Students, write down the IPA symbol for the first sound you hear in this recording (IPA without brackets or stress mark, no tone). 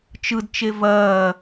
t͡ʃ